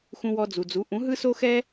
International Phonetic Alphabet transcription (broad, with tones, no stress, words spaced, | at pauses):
xũ˧wɔ˧d͡zu˩d͡zu˩˥ ʔũ˩˥ɦɯ˥so˥xɛ˥